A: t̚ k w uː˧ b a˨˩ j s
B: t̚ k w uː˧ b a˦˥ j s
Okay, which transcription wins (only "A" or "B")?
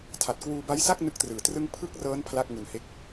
B